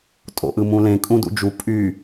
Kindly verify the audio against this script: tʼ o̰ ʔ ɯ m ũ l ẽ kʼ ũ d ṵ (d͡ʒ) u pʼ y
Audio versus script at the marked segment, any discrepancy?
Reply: no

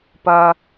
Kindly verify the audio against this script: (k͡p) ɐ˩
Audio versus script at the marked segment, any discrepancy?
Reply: yes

